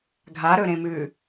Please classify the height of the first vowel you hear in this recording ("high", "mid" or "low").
low